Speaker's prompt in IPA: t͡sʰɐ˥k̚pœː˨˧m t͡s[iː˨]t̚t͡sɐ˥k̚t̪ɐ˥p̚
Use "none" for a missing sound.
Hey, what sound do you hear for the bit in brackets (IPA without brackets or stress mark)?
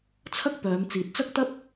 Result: iː˨